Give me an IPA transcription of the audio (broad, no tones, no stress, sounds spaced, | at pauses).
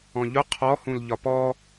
ɔ̃ ʎ ʊ qʰ ɔ h ũ l ʎ ɒ p ɔ